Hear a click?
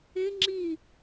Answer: yes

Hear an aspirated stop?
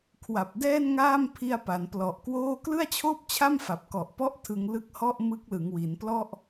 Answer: yes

